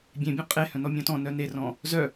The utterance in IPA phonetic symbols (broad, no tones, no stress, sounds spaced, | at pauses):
bʲ ẽ bʲ ã qʼ e h œ̃ n ɔ mʲ ɔ̃ t ɔ̃ n œ n e r ɔ̃ | z œ